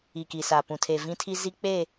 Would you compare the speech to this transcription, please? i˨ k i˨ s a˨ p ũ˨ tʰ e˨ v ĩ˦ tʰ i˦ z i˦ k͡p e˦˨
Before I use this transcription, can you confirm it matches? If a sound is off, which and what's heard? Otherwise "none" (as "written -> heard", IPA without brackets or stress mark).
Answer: none